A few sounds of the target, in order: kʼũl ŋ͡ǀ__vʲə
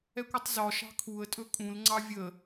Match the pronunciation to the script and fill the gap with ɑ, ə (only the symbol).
ɑ